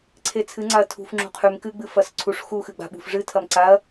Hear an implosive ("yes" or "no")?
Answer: yes